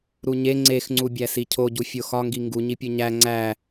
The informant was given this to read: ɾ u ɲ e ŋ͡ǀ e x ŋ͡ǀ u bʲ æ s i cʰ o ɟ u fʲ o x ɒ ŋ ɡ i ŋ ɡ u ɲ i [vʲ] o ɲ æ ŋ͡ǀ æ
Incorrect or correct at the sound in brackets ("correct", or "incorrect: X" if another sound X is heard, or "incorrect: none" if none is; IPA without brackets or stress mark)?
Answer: incorrect: pʲ